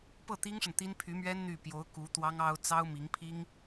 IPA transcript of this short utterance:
p ɤ˥˩ t̪ i˥ ŋ ʂ ə˨ n t̪ i˥ n pʰ y˧˥ m ɥ ɛ˥ n n̪ y˥˩ p j o˧˥ ʊ̯ k u˧˥ t̪ w ɑ˥ ŋ ɑ˥ ʊ̯ t͡s ɑ˥ ʊ̯ m i˧˥ ŋ pʰ i˥ ŋ

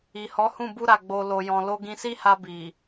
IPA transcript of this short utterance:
i˨ h ɔ˨˦ h ũ˦˨ b u˧ ɾ a˨ ɡ͡b o˨ l o˨ j ɔ̃˨ l o˧ ɡ ĩ˧ s i˦ h a˧ b i˨

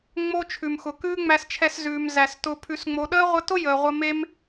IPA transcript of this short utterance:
ŋ͡m o˦ t͡ʃʰ ʉ˨ m x ʊ˨ k ʉː˦ ŋ͡m æ˧ s t͡ʃʰ ɛ˧ s z ʉː˨ m z æ˨ s t ʊ˨ pʰ ʉ˨ s ŋ͡m o˨ ɗ əː˦ ʁʷ ə˧ t ʊ˦ j əː˨ ʁʷ ə˧ m e˦ m

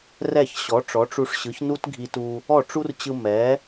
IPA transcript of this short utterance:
r ɛ˥˩ ç ɕ ɔ˩˥ ʈ͡ʂ ɔ˩˥ ʈ͡ʂ u˧ ʂ ɕ ɯ˩˥ ç n u˥ t ɡʱ i˧ t u˧ | ɔ˥˩ ʈ͡ʂ u˥ r t͡ɕ ɯ˧ m ɛ˩˥

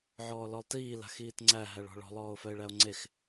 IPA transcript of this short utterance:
ʕ ɔː l ɔ lˠ t iː l a̤ x iː t ŋ͡ǀ æ ɦ æ ɭ ɔ̤ ɭ ɔ̤ lˠ ɔː o̯ f œ e̯ ɭ æ o̯ ŋ͡ǀ e x

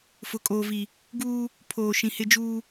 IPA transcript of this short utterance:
f ʊ˨ kʼ oː˨ v i˨ | ɡ uː˦ | pʰ oː˨ ʃ ĩ˨ h ɪ˦ d͡ʒ uː˦

